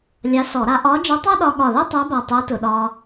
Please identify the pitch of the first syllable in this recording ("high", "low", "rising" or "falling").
rising